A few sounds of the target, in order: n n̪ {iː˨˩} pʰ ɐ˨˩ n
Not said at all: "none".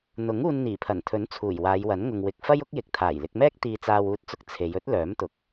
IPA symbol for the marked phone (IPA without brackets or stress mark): iː˨˩